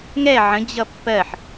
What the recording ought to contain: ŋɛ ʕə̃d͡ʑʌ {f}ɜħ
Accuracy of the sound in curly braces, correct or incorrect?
incorrect